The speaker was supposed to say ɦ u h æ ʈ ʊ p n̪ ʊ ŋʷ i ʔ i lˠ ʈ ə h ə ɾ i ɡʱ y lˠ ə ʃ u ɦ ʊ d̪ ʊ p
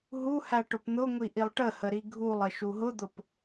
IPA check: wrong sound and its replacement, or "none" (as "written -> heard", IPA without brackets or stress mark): y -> u